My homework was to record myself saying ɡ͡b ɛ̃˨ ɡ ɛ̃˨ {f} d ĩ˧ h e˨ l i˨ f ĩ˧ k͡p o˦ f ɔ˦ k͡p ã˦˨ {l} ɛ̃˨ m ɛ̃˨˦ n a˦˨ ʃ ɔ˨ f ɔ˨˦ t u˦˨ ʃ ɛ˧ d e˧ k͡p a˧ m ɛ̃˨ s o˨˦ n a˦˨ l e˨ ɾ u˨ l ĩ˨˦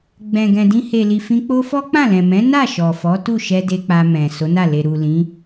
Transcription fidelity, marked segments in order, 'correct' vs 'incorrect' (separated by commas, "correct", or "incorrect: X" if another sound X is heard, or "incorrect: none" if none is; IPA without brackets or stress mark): incorrect: none, correct